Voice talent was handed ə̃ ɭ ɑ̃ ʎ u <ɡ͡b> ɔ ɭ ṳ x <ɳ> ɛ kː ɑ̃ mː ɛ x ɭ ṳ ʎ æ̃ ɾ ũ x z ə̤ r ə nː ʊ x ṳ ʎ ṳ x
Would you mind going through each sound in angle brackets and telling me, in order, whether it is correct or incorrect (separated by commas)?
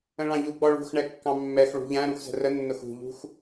correct, correct